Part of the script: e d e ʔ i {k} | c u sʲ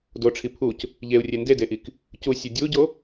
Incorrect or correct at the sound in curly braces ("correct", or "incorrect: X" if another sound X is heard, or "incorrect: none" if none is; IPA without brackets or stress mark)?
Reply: correct